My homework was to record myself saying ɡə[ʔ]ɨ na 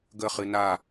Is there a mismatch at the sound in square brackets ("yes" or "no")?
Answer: yes